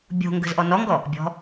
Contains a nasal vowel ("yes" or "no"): no